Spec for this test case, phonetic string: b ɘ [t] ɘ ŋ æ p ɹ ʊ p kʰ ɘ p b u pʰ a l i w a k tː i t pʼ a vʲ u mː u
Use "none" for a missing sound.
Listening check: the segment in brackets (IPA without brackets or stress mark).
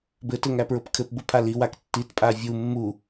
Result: t